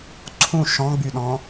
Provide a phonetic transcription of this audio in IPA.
ǀʰ ũ ʃ ɔ̃ ɡ͡b y ɗ ɔ̃

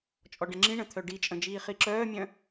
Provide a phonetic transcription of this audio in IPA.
t͡ʃʼ ɔ ɖ ə̃ ŋ͡ǁ ĩ ɳ ə̃ t̪ʰ œ ɖ i t͡ʃʼ ə̃ d͡ʒ iː χ i ǁ œː mʲ œ̃

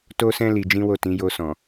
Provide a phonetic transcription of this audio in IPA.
t o˦ s ɛ̃˦ l i˧ d͡ʒ ĩ˦ w o˦˨ t ĩ˨˦ j o˧ s ɔ̃˨

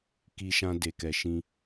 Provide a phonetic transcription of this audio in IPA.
k i˧ ʃ ã˧ d e˨ k ɛ˨ ʃ ĩ˧

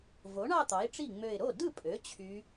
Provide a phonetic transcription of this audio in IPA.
v o˩˥ ɳ ɑ˥˧ t̪ ɑ˩˥ ɪ̯ ʈ͡ʂ i˥˩ ŋ͡m ø˧˩ ɪ̯ ɾ o˥˩ d ɯ˥˩ pʼ ø˩˥ t͡ɕʰ y˧˥

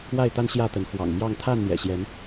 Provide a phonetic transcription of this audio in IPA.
w a˥˨ ɪ̯ t̪ a˦ n ɕ j ä˥˨ t̪ ə˨˦ n x w ɑ̰˨˩ ŋ m j ɑ˥˨ ŋ t̪ʰ a˥˨ n n̪ j ɛ̰˨˩ ɕ j ɛ˨˦ n

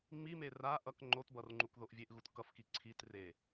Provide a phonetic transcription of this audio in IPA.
ŋ͡m i m e r a ʔ ʌ k ŋ͡ǃ o t b ʌ r ŋ͡ǃ u k ð o ʔ vʲ e ʔ ɣ u t k ʌ f k i ǀʰ i t r e

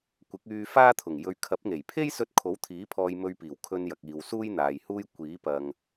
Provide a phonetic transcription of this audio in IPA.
kʷ ɪ˨˥ k̚ yː˧ f aː˥ t̪ʰ ʊ˨˩ ŋ j ɵ˨ ɥ kʰ ɐ˨˥ p̚ ŋ e˨˩ j pʰ e˥ j s ɵ˧ t̚ kʰ o˨˥ w t̪ʰ iː˨˥ pʰ ɔː˧ j m ɵ˧ ɥ p iː˨˩ w kʰ ɵ˧ n j ɐ˨ k̚ iː˨ w s uː˥ j n̪ aː˨ j h uː˥ j kʷ iː˨˥ p ɐ˨ ŋ

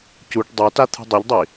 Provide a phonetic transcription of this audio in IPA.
c u ʈ dˤ o t a t̪ʰ ṳ dˤ ɛ ʎ dˤ i

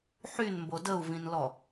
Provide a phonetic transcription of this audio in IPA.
ħ y n m b o d ə u̯ v ĩ n l ɔ

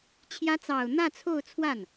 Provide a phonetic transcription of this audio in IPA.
t͡ɕʰ j ä˧˥ t͡s ɑ˨˩ ʊ̯ n̪ ä˥˧ t͡sʰ o˥˧ ʊ̯ t͡sʰ w a˥˩ n

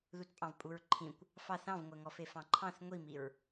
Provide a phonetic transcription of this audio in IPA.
ð u t pʼ ɑ̃ v pʼ u ɹ ǃʰ ĩ kʷ | f ɑ θ ɑ̃ v ŋʷ ɛ ŋ ɔ f e f ɑ̃ ǃʰ ɑ̃ θ ŋʷ i m i ɹ

